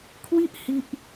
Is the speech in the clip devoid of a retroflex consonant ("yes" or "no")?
yes